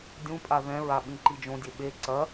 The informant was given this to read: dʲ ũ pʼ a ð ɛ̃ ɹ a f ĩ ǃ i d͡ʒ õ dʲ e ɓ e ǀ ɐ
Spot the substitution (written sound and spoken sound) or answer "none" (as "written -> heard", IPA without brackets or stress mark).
f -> ɓ